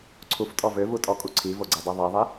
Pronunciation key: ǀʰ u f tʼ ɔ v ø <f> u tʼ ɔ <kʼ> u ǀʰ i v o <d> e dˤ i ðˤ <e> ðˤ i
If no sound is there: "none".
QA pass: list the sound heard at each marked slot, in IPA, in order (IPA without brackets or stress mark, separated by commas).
v, kʼ, ɡ͡ǀ, i